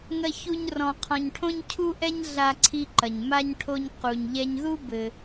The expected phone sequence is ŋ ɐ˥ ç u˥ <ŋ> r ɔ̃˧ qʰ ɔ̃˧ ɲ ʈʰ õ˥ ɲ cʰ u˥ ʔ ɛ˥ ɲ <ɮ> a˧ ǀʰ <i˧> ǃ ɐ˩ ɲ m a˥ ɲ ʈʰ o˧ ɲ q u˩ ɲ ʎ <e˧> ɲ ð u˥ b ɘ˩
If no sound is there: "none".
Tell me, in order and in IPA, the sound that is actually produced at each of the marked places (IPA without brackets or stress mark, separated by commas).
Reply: ɲ, ɮ, i˧, ɛ˧